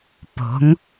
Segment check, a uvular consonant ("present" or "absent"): absent